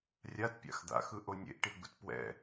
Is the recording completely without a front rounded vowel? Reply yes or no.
yes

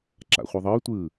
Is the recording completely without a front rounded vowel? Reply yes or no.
no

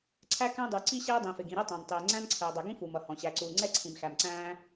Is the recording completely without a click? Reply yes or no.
no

